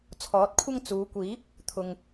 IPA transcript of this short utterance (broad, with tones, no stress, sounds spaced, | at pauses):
t͡sʰ ɔː˨˥ t̚ kʷʰ ɐ˥ ŋ t͡s uː˨˧ kʷ iː˨˥ p̚ | t̪ʰ ʊ˨ ŋ